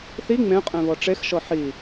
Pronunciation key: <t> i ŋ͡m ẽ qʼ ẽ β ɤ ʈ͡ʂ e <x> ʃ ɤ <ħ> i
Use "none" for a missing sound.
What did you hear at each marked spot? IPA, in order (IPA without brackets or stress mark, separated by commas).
θ, x, ħ